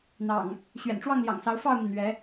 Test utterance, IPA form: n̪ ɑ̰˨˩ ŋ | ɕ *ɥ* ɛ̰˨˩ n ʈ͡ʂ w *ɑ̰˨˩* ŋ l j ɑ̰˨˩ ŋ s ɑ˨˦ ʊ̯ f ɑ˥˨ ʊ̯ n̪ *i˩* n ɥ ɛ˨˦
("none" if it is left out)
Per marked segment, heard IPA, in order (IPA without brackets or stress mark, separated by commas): ɥ, ɑ˥˨, i˩